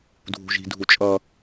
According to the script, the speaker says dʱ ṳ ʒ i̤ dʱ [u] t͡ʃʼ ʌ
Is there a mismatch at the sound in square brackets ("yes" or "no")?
no